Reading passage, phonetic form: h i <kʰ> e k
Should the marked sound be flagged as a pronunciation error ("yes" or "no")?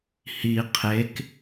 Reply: yes